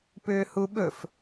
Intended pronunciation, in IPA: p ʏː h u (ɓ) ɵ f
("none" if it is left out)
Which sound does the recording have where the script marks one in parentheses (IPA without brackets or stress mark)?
ɓ